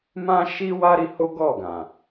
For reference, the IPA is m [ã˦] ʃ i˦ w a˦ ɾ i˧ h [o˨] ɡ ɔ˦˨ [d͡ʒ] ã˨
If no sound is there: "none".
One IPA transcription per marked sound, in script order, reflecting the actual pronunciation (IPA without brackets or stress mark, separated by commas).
ã˦, o˦, ɡ